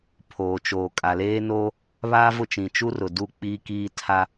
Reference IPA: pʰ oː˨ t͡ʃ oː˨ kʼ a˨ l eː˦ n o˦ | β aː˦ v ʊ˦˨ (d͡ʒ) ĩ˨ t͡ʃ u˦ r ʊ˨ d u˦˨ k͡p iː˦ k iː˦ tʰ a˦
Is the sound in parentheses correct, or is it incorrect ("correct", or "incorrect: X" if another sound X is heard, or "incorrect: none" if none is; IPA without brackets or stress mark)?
incorrect: t͡ʃ